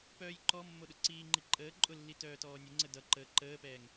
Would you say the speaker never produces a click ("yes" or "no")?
no